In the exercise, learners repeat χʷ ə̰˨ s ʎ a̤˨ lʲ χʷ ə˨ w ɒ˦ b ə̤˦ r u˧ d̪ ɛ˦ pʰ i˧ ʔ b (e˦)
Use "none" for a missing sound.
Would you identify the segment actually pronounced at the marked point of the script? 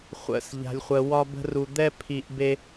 e˦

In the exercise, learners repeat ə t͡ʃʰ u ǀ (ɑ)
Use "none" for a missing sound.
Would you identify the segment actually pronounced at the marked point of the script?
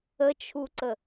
ə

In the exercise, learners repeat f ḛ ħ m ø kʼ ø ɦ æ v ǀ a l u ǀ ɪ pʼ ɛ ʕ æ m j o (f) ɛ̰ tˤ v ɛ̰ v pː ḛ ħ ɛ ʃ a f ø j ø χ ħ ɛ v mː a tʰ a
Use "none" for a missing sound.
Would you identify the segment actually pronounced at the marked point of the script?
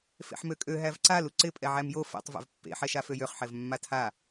f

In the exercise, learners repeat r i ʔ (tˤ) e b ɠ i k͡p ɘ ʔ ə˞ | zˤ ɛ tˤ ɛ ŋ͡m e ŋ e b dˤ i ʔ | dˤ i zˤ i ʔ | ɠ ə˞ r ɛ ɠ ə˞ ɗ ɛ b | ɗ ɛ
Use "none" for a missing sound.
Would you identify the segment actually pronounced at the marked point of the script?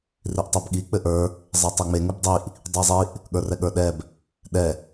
tˤ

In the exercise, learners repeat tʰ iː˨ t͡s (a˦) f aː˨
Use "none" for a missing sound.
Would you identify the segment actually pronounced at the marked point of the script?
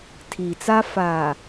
a˦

